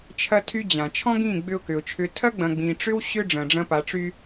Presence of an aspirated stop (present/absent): present